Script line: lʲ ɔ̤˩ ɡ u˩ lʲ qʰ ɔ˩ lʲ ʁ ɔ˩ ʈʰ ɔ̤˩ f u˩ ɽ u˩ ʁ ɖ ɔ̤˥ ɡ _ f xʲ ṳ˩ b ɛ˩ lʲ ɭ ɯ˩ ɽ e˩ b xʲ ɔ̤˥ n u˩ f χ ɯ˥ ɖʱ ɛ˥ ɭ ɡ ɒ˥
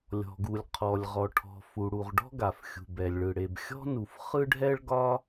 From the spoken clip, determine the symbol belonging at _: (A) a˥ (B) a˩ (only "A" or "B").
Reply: B